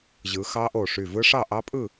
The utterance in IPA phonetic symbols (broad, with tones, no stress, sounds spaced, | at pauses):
ʑ ɯ˨˦ x ɑ˦˥ ʔ o˧˩ ʂ y˧˩ v ɯ˦˥ ʂ ɑ˥˨ ʔ ɑ˦˥ pʼ ɯ˥˨